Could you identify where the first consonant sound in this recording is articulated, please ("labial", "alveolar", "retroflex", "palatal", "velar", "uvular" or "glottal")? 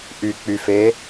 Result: glottal